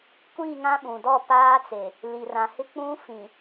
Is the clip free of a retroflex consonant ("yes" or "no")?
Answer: yes